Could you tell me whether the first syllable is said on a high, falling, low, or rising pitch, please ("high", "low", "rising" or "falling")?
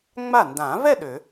falling